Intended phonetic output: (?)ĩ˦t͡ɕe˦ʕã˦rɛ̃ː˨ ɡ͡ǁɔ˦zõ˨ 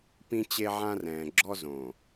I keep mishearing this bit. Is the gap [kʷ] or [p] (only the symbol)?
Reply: p